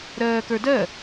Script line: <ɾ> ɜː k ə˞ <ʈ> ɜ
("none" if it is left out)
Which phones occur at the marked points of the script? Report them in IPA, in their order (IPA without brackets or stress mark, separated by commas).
ɾ, d